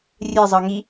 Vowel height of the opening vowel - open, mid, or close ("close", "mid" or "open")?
mid